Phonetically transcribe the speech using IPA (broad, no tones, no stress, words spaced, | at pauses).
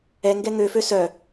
ɛŋɡɛ ŋøfø sœ